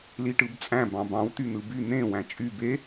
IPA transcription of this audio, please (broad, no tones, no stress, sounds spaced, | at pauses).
l i ʈ ɯ b t͡sʼ æ̃ b ɑ̃ b ɑ̃ w t̪ y n̪ ɯ b y n̪ ẽ w æ̃ t͡ʃʼ y b e